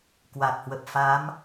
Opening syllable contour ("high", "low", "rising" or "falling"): low